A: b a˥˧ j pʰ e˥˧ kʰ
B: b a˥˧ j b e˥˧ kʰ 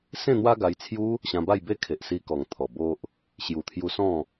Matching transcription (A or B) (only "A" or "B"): B